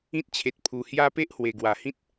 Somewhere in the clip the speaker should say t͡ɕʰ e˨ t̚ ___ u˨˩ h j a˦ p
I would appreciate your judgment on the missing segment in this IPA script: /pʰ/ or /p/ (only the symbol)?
pʰ